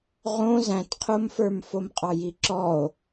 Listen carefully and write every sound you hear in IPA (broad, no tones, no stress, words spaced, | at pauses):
ʁõ zæ̃tqʰomfə˞m fomqʼɑjiǁɔo̯